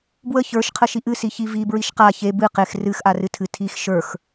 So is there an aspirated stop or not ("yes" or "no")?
yes